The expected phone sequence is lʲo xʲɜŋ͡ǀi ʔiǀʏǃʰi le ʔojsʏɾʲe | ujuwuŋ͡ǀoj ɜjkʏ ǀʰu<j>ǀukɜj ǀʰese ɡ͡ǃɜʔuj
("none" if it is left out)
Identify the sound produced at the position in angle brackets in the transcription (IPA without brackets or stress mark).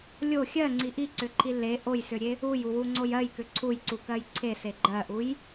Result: j